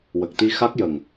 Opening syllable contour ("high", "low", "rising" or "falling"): low